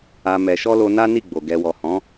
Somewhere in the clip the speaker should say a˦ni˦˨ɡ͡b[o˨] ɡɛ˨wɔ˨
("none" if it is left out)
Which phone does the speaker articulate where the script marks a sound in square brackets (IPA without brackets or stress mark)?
o˨